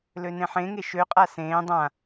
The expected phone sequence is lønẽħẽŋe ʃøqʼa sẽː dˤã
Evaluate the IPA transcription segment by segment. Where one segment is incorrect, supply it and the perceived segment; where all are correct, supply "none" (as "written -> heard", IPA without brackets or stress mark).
none